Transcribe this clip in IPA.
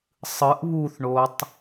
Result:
sˤ ɯ ʔ β u θ ɳ o tˤ

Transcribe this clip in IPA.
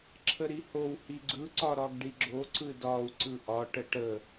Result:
ǁʰ ə ɾ i h o w h i ɡ͡ǀ ɯ ǀ ɒ ɾ ɒ ɡ ɖ i ɡ͡ǁ o ǀ ɯ d ɒ u̯ ǀ ɯ ʔ ɒ ʈ ə ʈ ə

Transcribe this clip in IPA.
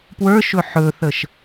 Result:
p w ə˞ ʃ ɵ ħ ɵ θ ə ʃ

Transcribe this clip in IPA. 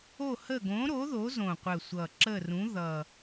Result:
o˦˨ h ə˦˨ ɡ õ˨˥ ɾ o˨˥ ð o˨˥ z õ˨˩ qʷ ə˨˩ sʷ ʌ˨˩ ǁ ə˦˨ r ũ˨˥ ð ʌ˨˩

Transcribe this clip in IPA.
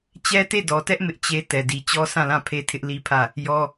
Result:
t͡ɕ ɛ˦ t e˦˨ d ɔ˨ t ɛ˦ ʔ m ɪ˦ ʔ t͡ɕ e˦ t ɛ˨ d i˨ t͡ɕ ɔ˦ sʰ ã˦˨ l ã˦˨ pʰ e˦ tʰ ɪ˦ ʔ l i˦ pʰ ä˦˨ | j ɔ˦

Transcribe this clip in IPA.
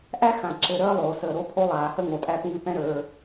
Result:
ʔ æ˦ x ã˨ ǁ ɘ˨ ɾ əː˧ lˠ oː˨ s əː˨ ɾ o˧ pʰ o˧ lˠ aː˨ h ə˧ ŋ o˨ tʼ æ˧ p ŋ ɨ˧ p ɛ̃˦ ɾ ə˞˧

